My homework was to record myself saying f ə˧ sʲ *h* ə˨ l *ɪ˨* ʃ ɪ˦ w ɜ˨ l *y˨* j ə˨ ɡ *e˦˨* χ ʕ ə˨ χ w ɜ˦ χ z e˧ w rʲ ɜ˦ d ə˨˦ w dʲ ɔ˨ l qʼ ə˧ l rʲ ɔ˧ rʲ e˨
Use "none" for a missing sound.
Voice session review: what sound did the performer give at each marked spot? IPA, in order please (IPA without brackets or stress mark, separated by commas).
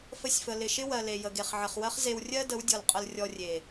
f, ɪ˨, e˨, e˨